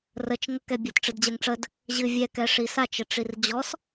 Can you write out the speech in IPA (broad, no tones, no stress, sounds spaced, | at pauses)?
r ə t͡ʃ ŋ ə k ɛ bʲ a t ʈ͡ʂ ɨ d d͡ʑ ɛ ŋ ʈ͡ʂ ə d | ʑ ɨ vʲ ɛ k ɛ ʂ i s a t͡ʃ ə ʈ͡ʂ i r d͡ʑ ɔ s